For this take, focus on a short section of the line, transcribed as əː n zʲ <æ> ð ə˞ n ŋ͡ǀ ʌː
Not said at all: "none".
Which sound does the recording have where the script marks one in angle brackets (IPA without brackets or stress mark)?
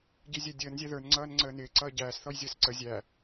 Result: æ